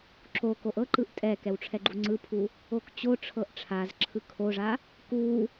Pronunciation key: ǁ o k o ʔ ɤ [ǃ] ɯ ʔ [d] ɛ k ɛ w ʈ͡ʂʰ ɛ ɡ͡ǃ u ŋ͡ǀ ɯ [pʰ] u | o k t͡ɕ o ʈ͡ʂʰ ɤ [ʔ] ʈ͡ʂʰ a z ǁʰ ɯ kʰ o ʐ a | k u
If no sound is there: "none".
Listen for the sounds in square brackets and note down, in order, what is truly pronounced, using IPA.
ǃ, tʼ, pʰ, ʔ

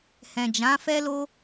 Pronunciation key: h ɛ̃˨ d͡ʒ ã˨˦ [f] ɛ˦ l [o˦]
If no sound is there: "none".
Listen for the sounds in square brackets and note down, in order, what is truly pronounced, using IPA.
f, o˦

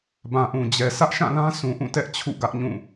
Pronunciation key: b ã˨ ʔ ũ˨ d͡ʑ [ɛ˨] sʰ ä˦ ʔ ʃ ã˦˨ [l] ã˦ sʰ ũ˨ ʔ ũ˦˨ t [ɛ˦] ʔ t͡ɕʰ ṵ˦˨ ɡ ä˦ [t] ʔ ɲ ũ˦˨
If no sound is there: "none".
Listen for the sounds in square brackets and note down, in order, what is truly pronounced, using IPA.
ɛ˨, l, ɛ˦, none

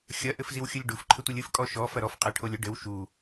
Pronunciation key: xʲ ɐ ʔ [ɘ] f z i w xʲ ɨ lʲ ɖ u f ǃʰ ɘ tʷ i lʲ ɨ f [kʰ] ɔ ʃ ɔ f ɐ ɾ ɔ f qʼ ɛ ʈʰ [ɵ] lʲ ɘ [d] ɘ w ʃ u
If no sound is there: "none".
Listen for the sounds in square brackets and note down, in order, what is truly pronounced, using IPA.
ɘ, kʼ, o, ɖ

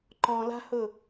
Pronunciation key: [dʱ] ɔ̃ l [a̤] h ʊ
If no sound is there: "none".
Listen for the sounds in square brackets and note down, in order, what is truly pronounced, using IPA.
ǃ, a̤

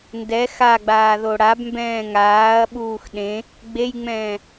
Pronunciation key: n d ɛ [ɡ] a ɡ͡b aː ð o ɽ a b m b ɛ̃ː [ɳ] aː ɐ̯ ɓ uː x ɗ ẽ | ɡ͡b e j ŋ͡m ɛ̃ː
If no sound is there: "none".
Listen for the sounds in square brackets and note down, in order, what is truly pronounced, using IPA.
x, ŋ

